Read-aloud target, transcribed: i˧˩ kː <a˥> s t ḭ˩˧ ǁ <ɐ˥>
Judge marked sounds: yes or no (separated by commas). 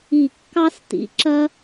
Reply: no, yes